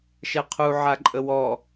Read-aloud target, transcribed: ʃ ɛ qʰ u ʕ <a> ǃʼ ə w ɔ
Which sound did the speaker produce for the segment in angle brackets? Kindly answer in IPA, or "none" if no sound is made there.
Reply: a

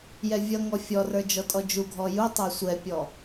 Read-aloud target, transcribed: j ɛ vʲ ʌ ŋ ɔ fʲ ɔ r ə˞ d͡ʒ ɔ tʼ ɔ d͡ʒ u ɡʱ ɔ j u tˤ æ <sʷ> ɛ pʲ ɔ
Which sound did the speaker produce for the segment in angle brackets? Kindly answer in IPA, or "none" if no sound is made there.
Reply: sʷ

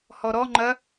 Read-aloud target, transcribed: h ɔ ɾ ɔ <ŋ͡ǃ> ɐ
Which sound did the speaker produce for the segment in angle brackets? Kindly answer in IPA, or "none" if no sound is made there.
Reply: ŋ͡ǃ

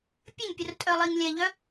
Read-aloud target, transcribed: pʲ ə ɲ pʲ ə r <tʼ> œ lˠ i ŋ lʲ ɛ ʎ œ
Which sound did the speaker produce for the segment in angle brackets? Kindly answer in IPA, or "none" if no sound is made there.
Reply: tʼ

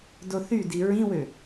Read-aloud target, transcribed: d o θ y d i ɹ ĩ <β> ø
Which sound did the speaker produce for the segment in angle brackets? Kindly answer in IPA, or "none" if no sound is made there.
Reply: w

